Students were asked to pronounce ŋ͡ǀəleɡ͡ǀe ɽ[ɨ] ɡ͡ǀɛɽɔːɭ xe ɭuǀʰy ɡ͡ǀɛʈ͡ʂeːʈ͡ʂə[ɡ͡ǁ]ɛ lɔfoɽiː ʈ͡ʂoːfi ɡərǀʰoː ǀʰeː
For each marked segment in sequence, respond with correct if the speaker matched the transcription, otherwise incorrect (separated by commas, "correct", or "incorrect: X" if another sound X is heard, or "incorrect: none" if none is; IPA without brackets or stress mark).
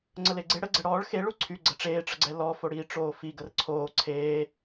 incorrect: ə, incorrect: ɡ͡ǀ